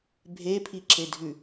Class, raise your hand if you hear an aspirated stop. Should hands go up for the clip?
yes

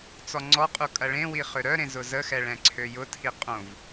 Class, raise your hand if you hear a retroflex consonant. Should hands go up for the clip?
yes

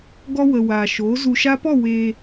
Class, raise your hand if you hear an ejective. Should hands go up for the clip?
no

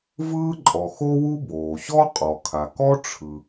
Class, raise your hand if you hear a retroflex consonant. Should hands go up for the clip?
yes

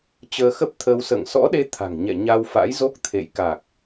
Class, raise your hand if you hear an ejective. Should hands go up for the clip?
no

